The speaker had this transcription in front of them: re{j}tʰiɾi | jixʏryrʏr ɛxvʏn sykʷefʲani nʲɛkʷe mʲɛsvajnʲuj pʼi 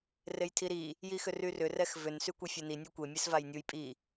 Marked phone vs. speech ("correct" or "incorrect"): correct